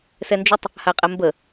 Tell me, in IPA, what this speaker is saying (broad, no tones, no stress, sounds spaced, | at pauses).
s ɛ n d͡ʒ ʊ tˤ | h a qʼ ɛ m b ə